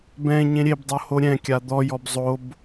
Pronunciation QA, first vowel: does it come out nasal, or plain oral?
nasal